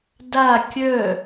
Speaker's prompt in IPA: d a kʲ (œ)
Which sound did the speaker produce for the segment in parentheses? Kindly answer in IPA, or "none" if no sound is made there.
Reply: œ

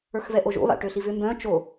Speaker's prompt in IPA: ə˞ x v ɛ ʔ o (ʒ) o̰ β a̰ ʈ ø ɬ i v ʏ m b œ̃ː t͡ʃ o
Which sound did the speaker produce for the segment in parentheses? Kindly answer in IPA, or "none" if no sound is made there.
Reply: ʒ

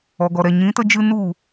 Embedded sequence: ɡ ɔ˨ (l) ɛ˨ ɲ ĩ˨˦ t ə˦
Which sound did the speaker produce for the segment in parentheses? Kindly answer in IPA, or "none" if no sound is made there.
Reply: ɾ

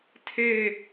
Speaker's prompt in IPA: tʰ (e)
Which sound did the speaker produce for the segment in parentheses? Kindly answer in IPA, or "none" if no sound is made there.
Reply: e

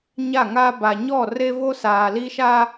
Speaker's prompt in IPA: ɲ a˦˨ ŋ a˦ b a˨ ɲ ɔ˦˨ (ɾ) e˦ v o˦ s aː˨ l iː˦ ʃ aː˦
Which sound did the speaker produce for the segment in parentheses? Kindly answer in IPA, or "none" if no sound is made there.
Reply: r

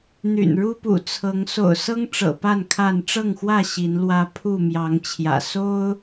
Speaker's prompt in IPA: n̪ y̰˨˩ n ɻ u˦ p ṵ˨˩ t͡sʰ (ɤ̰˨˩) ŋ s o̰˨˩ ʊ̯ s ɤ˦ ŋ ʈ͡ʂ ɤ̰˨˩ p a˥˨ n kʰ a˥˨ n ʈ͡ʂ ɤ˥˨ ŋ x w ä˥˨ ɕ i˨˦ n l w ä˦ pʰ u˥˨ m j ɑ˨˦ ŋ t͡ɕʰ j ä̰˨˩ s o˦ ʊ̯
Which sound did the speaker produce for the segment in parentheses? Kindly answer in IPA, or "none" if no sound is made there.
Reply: ɤ˨˦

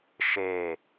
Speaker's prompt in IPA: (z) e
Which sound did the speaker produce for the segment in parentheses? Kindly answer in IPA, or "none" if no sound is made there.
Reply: ʃ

